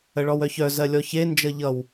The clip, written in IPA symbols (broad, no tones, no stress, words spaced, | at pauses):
əɭɔwœçœ zɜlʲɔçe nd͡ʒʌʎʌw